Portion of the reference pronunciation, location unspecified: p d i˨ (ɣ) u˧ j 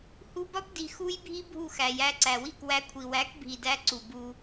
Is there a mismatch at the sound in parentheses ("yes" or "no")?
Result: yes